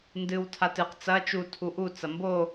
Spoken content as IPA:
n d ɨ w tʰ a t ɨ q t͡s ɐ t͡ʃ u tʰ u ʔ u t͡s ɐ m b o

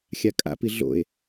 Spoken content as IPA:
xʲ a kʼ a̰ p i ɮ o̰ e̯

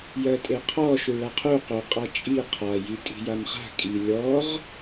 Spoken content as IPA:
j ɜ tʼ e qʰ ɔ ʃ u ɭ a qʰ u q o qʼ a t͡ʃʼ i qʰ a j i tʼ i̤ j a m χ a̤ kʼ i lʲ ɔ ʁ

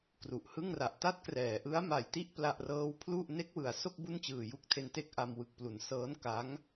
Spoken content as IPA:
k r u˨˩ ʔ h ɯ˥˩ ŋ r a˨˩ ʔ t a˥˩ t̚ k r ɛː˩˦ ʔ ɯ˦˥ a̯ m a˨˩ j t i˥˩ ʔ p l a˥˩ ʔ r ɤː˥˩ w pʰ l u˥˩ ʔ n e˦˥ k̚ w ɯ˩˦ a̯ s o˥˩ k̚ b u˥˩ n t͡ɕ ɯː˨˩ j u˥˩ k̚ tʰ e˧ n t e˥˩ k̚ ʔ a˧ m w ɯ˨˩ k̚ p l u˩˦ n s ɤː˦˥ n k a˦˥ ŋ

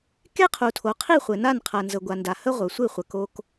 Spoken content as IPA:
k e˦ qʰ u˨ tʰ o˨ qʰ i˦˨ χʷ ɘ˨ n a˦˨ n qʰ ɐ˨ n z ə˨ ɡʷ a˨ n d a˨ h ə˦ ʁʷ œ˨ sʷ ɨ˦˨ χʷ ə˨ k o˧ k

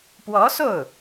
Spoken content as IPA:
p w ɔ˧˥ s o˥˩ ʊ̯

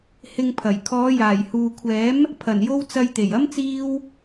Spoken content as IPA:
h ɪ˧ ŋ pʰ ɐ˨˩ j kʰ ɔː˨˧ j aː˨˩ j h uː˨ kʷʰ ɛː˨˥ m | pʰ ɐ˨˩ n j o˧ w t͡s ɐ˧ j t̪ e˨˩ j ɐ˥ m t͡s iː˥ w

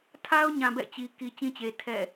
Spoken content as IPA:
tʰ a˦ ʊ̯ ɲ ã˨ b ɛ̰˦˨ t͡ɕ i˨ k i˨ t͡ɕ ĩ˦ t͡ɕ e˨ tʰ ɛ̰˦˨

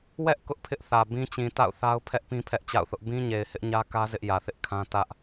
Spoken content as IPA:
w ɛ˦ ʔ k ʊ˦ ʔ pʰ ɪ˦ ʔ θ ä˨ b ĩ˦ t͡ɕ ĩ˨ t a̰˦˨ ʊ̯ θ a˦ ʊ̯ pʰ ɛ˦ ʔ p ĩ˦ pʰ ɛ˦ ʔ t͡ɕ a̰˦˨ ʊ̯ θ ʊ˦ ʔ b ĩ˦ ɲ e˨ ɪ̯ h ɪ˦ ʔ ɲ ä˦ k ä˦ z ɪ˦ ʔ j ä˨ θ ɪ˦ ʔ kʰ ã˦ t ä˦ ʔ

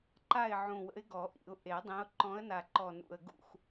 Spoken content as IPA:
ǃ a˦˨ ɪ̯ ʕ ũ˨˩ w ə̰˨˦ ɪ̯ ɡ ɔ˨˩˦ ʔ ḭ˨˩˦ ʊ̯ ʔ e˨˩˦ dˤ ĩ˨˦ ʊ̯ ǃ ɔ̃˨˦ ə̯ n a˨˩ ǃ ɔ˨˩ n ṵ˨˩ ə̯ ɡ ṵ˦˨ x

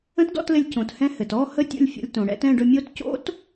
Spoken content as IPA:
ə̃˦˥ t d ɔ̰˥˧ t l ɘ˧ lʲ c õ˩ t h ɛ̃˧ h ɘ˩ t ɔ˥˧ h ə˥˧ tʲ o̰˥˧ lʲ fʲ ɔ̰˧ lʲ t õ˩ ɽ ɛ̰˧ t ɛ̃˥˧ ɖ ɵ˧ mʲ o˦˥ t c o̰˦˥ t

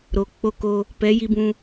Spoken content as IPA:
ɾ o˨ k͡p o˦ k o˦ | p ɛ˨˦ j i˦ b ũ˦

